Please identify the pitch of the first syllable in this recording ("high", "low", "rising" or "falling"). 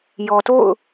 low